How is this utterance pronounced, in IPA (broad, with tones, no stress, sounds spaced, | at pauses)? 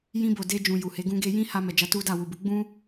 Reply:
j ĩ˧ b o˨ d e˧ d͡ʒ ũ˨ j u˨ h e˨˦ ɡ ũ˦ ɡ e˦ j ĩ˦ h a˧ m ɛ˨ d͡ʒ a˨˦ t u˦ d a˦˨ w u˨ b u˨˦ ɡ͡b ũ˦